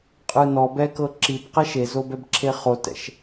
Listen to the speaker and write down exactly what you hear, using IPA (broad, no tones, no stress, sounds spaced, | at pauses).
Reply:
qʼ ɯ n ɔ b ɛ k ɤ ǁ i b q ɛ ʃ e z o b ɛ b ǁʰ e χ o t ɛ̰ ʃ